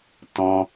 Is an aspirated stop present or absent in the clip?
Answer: absent